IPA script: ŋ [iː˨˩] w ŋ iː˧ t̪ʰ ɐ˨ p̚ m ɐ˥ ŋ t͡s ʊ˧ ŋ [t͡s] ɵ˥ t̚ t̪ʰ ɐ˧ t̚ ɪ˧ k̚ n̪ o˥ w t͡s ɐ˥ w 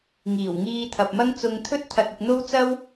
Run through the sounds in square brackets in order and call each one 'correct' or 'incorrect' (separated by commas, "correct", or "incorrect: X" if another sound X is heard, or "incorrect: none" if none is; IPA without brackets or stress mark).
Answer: correct, incorrect: t̪ʰ